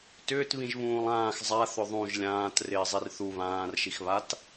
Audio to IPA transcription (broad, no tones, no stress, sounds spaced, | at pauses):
t ʏː t β ĩ ʒ β ũː lˠ ãː x zˤ a θ ʏ ðˤ ũ ʒ lʲ ãː t r ɪː zˤ i r θ u β ãː r ʃ i x β a t